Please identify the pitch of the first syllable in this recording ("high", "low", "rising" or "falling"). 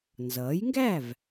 rising